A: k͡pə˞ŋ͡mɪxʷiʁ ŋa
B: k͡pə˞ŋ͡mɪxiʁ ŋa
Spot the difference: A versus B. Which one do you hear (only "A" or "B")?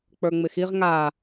B